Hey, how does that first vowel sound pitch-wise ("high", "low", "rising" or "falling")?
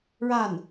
falling